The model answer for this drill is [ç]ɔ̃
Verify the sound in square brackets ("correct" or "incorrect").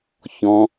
correct